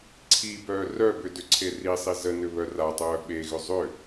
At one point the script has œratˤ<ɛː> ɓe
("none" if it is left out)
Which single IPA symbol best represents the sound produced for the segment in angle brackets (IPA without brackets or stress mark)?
œː